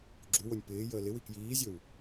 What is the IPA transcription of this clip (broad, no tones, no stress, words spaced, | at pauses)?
ɡ͡ǁuwonʲ pɪː jəːlɪwi kjiːzʲɵw